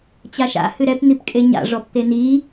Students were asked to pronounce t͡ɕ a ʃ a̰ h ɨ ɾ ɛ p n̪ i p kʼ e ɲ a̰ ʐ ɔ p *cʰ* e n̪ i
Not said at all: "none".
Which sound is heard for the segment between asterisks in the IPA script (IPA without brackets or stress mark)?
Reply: t̪